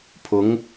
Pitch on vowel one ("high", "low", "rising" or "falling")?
rising